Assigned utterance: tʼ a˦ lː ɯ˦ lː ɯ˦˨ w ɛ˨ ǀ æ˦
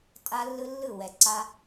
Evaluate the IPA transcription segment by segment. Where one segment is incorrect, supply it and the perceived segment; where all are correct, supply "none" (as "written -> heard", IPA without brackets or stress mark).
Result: æ˦ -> a˦